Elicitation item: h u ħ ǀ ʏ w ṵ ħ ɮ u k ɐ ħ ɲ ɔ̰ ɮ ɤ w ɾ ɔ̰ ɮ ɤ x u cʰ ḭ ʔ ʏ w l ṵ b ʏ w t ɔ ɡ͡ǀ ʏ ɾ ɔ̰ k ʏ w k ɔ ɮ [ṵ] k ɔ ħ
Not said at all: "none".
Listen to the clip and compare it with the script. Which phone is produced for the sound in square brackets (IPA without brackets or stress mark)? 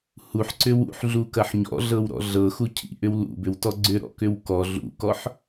ṵ